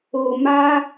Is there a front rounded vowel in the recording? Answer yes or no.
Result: no